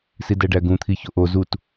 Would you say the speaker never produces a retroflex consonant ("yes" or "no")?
no